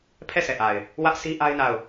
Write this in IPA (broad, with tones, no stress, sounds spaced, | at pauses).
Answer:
pʰ ɛ˦˨ s ɛ˨ ʔ a˨ ɪ̯ | w ä˦ ʔ sʰ i˦ ʔ a˦ ɪ̯ n a˦˨ ʊ̯